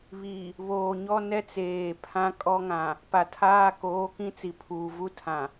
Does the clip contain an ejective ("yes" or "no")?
yes